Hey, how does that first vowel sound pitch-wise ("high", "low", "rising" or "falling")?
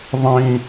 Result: low